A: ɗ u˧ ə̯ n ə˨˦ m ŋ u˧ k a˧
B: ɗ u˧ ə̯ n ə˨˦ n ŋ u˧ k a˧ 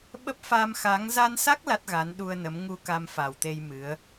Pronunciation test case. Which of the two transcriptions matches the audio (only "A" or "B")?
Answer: A